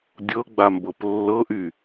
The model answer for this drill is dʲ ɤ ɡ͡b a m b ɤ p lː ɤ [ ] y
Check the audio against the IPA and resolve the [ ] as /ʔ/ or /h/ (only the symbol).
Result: ʔ